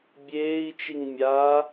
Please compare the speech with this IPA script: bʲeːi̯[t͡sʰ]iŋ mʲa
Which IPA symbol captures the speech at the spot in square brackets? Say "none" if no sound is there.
t͡ʃ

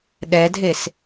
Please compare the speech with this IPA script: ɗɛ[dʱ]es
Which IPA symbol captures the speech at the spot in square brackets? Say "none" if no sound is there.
dʱ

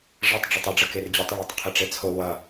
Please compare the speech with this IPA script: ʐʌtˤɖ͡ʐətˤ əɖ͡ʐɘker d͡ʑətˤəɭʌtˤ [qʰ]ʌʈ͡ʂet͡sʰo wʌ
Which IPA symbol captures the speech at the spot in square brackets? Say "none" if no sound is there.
qʰ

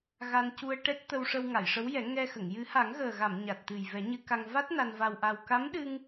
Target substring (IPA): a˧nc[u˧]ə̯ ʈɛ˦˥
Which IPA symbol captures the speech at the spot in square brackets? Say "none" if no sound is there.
u˧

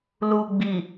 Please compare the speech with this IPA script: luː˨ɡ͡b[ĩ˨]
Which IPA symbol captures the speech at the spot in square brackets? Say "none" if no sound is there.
i˨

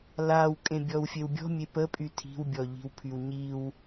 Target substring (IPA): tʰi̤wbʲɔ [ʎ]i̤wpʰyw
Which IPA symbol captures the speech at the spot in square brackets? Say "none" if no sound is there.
ʎ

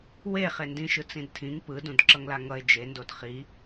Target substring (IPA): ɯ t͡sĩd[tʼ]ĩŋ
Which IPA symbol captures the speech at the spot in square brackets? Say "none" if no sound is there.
tʰ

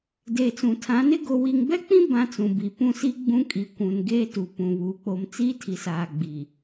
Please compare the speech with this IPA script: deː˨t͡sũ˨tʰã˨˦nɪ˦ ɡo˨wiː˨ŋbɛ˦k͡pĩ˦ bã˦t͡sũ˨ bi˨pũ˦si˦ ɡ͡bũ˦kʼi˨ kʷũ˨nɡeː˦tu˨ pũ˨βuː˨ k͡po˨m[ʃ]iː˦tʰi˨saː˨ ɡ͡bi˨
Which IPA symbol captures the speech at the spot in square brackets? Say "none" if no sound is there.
t͡s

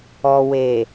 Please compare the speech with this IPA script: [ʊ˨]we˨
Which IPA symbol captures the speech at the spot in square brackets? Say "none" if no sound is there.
ɔ˨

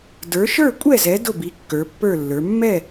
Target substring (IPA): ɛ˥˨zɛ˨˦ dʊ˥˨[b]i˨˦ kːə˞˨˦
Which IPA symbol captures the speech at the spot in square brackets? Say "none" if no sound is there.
b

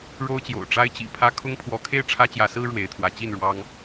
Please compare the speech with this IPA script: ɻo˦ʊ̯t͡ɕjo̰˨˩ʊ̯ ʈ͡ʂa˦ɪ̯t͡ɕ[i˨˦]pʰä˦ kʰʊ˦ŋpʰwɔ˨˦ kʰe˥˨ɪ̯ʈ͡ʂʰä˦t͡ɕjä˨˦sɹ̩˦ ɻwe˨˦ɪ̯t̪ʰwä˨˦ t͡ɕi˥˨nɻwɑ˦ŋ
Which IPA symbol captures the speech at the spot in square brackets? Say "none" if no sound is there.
ḭ˨˩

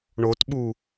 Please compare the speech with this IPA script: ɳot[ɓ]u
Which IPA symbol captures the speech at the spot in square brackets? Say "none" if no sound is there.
ɓ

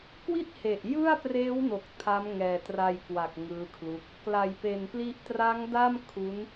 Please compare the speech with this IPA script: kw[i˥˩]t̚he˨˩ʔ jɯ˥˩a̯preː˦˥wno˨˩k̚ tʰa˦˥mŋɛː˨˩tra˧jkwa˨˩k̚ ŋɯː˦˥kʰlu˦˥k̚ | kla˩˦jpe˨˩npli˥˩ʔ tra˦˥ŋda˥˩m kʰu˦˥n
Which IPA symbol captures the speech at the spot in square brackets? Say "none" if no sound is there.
i˥˩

